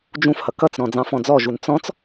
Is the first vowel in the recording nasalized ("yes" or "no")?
yes